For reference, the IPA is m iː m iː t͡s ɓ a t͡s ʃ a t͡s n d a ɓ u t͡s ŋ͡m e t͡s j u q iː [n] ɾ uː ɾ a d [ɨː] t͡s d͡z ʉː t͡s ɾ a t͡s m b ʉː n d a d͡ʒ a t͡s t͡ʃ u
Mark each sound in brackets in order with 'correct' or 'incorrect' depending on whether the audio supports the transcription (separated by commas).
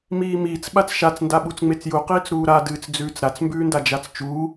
incorrect, correct